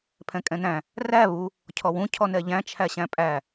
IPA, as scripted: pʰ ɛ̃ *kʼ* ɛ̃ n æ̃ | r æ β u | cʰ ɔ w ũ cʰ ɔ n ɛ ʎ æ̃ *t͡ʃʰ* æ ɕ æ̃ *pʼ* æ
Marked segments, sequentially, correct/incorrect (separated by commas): correct, correct, correct